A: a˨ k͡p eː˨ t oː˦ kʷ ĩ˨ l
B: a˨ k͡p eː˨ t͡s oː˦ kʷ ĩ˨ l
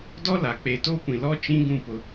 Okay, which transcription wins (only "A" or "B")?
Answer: A